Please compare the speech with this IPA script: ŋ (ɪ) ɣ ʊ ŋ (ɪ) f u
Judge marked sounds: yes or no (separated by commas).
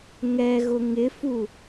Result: no, yes